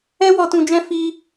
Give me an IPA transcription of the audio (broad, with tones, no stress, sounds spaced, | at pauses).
ɛ˦ w ɔ˧ t ũ˧ d͡ʒ ɛ̃˦ f i˧